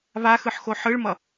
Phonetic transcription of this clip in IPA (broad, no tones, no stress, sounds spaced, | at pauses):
β a x ɯ ħ x o ħ ɯ ɭ m ʌ